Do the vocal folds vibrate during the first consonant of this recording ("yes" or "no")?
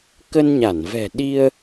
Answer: no